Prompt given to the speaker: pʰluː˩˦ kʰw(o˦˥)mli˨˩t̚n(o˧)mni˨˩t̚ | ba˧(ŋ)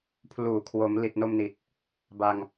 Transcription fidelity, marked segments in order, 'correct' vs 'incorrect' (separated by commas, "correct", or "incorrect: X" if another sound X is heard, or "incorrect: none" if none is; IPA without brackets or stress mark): incorrect: o˩˦, correct, correct